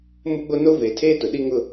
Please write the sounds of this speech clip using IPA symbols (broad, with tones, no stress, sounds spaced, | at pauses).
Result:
m ʊ˦ ɡ͡b o˦ n o˦ v eː˨ tʰ eː˦ t ʊ˨ ɗ i˦ ŋ ʊ˦